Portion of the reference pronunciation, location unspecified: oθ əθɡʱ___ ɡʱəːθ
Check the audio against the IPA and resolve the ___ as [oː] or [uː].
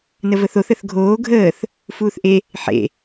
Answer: oː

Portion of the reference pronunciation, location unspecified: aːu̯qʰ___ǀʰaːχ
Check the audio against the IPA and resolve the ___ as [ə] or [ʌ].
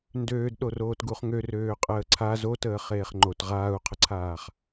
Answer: ə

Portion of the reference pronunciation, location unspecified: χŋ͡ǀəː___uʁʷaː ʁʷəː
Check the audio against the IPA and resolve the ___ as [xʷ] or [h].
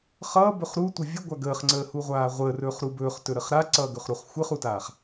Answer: h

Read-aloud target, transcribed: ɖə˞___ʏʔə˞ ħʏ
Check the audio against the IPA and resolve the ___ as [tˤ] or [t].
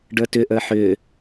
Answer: t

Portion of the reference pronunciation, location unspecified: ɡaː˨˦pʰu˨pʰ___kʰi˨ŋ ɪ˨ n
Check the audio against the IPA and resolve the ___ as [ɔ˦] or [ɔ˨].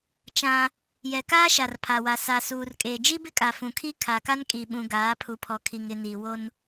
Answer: ɔ˨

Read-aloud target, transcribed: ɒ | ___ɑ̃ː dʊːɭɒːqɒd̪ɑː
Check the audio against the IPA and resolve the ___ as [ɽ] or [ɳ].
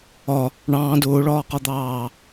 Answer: ɳ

